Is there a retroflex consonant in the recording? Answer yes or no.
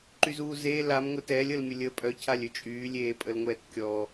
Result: no